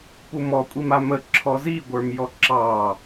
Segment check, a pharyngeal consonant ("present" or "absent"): absent